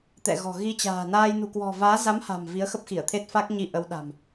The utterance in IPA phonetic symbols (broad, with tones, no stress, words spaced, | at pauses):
t̪ɛ̰˧˨ɣɔ̤˨˩ ɣi˧t͡ɕa̤ː˨˩ naː˧j nṳ˨˩kwɔ̤˨˩vaː˨˦ za˨˦mha̤˨˩m vi˨˦ə̯xə˦˥p̚ xi˧˩ə̯t̪ʰe˦˥t̚ fa˦˥k̚ɲi˧ ʔə˨˦wɗa̤˨˩m